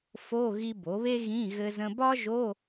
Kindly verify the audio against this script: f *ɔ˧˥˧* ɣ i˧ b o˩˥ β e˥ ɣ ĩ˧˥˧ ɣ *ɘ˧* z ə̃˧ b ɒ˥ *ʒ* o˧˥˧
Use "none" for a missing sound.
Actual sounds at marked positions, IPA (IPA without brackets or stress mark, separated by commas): o˧˥˧, ɘ˧, ʒ